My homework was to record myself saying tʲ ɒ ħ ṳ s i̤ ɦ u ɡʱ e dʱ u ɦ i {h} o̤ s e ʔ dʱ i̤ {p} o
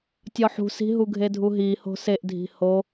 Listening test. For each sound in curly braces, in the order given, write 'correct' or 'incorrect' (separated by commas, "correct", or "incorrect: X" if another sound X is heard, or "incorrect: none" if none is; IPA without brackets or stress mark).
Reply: correct, incorrect: h